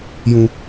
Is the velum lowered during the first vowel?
yes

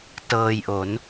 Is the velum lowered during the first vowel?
no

